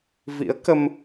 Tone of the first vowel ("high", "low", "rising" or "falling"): rising